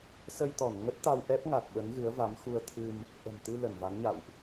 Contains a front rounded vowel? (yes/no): no